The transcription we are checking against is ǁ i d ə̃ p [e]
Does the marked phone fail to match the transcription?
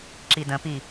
yes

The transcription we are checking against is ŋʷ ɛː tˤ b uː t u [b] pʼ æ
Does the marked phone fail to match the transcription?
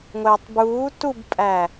no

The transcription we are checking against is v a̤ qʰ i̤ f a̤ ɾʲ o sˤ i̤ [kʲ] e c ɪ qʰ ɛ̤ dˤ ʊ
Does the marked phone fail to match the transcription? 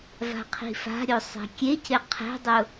no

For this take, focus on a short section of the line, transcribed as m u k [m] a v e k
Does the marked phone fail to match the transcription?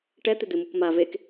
no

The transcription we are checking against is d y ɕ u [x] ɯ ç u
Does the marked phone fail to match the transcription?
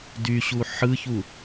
yes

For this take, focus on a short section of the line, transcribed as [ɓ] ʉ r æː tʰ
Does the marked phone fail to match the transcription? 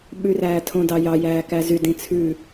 no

